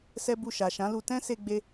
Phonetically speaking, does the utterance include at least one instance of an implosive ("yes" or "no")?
no